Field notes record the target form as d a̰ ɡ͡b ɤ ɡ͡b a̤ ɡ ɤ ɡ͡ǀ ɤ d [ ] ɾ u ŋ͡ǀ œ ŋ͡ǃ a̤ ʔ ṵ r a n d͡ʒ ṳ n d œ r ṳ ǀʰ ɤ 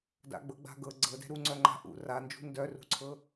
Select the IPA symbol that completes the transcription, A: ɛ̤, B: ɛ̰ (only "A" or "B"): A